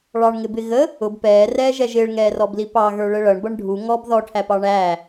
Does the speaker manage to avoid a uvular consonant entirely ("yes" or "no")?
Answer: yes